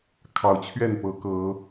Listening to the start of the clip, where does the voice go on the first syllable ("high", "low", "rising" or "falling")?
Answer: rising